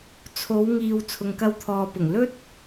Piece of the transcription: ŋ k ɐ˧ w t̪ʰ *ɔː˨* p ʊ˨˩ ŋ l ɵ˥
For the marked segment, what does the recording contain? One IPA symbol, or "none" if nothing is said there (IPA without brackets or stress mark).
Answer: ɔː˨